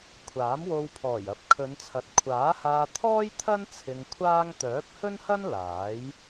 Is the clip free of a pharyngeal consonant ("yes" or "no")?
yes